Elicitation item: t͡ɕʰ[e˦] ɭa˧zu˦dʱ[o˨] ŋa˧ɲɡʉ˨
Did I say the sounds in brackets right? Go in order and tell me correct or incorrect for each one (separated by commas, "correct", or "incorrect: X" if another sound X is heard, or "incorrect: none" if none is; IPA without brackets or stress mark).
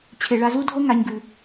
incorrect: e˨, incorrect: o˦